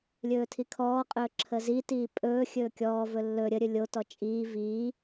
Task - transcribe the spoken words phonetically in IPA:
lʲɵːtʰikʰɔːqʼɵː ǁʰəzitiː pʼɵː xʲɵːkʲɔːvɵ lːɵ ɾʲəɾʲɵ lʲotɔ t͡ʃʼiː viː

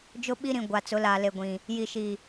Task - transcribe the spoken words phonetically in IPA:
d͡ʒʊ˦ɓi˦ɾĩ˨ ɡʷa˨t͡sʊ˨˦ laː˨le˨ ɡʷĩ˨ | ji˨ʃiː˨

